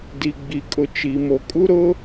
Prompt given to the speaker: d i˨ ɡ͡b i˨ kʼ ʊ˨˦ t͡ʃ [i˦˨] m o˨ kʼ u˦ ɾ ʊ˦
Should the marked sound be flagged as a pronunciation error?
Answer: yes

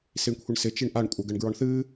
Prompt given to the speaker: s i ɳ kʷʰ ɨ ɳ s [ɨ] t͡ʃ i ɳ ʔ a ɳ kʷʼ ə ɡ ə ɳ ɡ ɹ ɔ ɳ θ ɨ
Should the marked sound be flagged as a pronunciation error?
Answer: yes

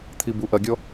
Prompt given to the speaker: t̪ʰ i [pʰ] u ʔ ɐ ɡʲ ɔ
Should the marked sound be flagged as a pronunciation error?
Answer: yes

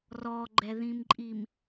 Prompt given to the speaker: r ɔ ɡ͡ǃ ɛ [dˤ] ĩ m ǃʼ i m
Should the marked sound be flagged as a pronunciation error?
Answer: yes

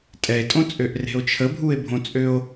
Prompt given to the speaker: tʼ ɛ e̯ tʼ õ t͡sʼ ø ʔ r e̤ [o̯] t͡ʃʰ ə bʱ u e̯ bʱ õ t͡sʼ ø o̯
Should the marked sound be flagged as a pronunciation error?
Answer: no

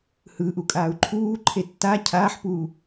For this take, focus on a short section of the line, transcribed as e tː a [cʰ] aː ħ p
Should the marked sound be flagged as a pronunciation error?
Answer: no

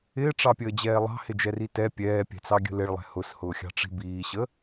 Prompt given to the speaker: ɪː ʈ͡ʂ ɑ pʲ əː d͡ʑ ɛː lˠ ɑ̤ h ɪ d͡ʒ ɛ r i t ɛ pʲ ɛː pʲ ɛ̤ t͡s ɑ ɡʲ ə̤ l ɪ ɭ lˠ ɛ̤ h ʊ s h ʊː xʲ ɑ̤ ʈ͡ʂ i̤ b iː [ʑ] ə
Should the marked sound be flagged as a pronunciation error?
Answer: yes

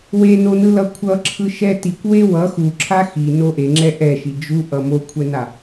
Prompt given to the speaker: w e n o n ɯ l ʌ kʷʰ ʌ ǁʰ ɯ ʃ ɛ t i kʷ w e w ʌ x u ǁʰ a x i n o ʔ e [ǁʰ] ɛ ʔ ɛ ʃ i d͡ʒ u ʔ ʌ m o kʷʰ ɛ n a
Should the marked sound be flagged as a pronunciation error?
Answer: yes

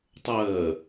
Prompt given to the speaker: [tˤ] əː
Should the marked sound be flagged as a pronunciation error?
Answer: no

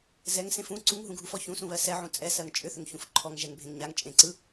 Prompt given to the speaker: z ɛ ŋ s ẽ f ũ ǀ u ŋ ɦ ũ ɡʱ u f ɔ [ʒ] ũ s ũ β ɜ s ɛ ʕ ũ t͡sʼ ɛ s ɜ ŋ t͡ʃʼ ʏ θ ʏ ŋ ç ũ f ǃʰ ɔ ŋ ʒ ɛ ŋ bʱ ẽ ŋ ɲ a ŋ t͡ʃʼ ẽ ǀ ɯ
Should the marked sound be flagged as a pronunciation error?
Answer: yes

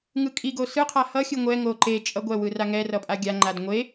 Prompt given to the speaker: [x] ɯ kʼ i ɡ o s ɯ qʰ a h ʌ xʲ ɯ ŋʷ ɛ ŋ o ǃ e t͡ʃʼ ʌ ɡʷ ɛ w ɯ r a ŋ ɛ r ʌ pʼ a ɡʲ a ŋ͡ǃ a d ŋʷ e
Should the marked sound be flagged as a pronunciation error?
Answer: yes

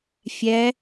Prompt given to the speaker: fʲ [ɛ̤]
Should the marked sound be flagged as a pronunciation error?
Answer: yes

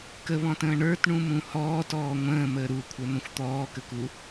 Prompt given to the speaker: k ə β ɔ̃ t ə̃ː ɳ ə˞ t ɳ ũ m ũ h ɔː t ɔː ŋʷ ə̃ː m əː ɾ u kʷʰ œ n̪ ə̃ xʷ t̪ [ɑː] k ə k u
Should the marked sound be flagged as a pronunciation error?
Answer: yes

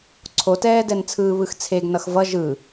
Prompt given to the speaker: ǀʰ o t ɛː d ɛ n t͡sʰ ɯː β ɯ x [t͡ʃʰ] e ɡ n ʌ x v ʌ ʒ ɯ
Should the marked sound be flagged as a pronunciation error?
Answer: yes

